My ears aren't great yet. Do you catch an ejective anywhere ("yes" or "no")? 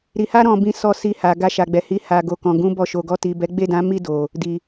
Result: no